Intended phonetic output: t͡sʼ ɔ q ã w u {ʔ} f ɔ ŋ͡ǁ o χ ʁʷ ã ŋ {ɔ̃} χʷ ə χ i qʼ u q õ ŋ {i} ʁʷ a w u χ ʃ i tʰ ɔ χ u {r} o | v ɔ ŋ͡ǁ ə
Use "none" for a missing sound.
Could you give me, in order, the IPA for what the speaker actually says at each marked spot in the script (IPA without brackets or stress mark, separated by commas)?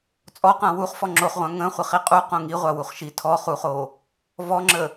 χ, ə̃, i, χ